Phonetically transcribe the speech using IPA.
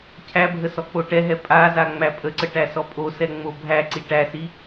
cʰ æ bʱ ə s ɔ k͡p o ʈ ɛ ɦ ɛ pʼ a z a ŋ͡m æ pʼ ə ǀ ə ʈ æ s ɔ pʼ o s ɛ ŋ͡m o bʱ æ ǀ i ʈ æ s i

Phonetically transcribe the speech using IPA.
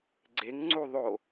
ɡ͡ǀ e ŋ ŋ͡ǀ u ðˤ o

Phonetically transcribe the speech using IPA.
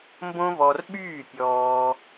m b õ˦ v ɔ˧ r ɓ yː˦˨ pʲ ɔː˧

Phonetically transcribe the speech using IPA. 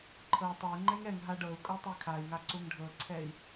ǃʰ ɤ u̯ tˤ ɤ i̯ ŋ͡ǃ ɛ ŋ ɛ ŋ ɦ a ɖ ɤ u̯ kʼ ɤ tˤ ɛ kʰ a i̯ ŋ a ǀ u ŋ ɖʱ ɤ ǀʰ ɛ i̯

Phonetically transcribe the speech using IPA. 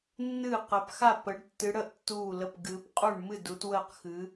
nː ɨː˥˩ q əː˨˦ p x a˥˩ p ə˨˦ ɖ tː ɨ˨˦ ɽ ə˥˩ ʔ tː uː˥˩ l ə˥˩ p ɡ ɨ˨˦ p qʼ u˥˩ ɳ m ɨ˥˩ d uː˨˦ t w əː˥˩ q x ɨ˨˦

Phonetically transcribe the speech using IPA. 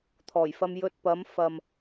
t̪ʰ ɔː˨˩ j f ɐ˧ m j ɵ˧ t̚ p ɐ˨˥ m f ɐ˨ m

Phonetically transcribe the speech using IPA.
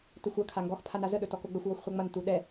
t ɵ xʷ ɐ kʰ a ŋ ɡ ɔ x pʰ a n a z ə ɗ ɵ t ɔ k o ɡ͡b ɵ xʷ w ɔ xʷ χʷ ɛ ŋ͡m ɐ n t u ɗ ɛ

